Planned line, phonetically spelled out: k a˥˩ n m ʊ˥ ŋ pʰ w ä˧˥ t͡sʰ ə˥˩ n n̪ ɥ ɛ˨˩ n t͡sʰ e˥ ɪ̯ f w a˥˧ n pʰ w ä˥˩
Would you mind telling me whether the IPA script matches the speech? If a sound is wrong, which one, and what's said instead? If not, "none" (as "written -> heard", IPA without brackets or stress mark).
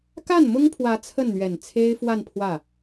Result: none